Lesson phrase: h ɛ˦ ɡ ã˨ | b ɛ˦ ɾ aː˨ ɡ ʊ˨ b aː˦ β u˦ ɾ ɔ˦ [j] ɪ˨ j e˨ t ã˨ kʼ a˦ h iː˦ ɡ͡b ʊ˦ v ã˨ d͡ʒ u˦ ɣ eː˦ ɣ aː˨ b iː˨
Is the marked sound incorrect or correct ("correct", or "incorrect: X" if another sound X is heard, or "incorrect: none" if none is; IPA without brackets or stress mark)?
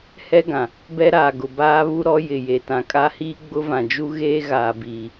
correct